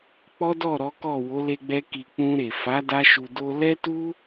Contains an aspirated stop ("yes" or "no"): no